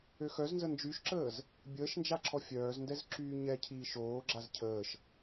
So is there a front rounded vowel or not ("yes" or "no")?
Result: yes